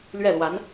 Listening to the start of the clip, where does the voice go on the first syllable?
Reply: falling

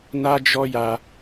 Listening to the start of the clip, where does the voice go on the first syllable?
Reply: high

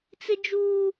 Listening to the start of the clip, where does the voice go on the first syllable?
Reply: high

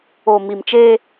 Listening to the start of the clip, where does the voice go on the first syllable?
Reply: low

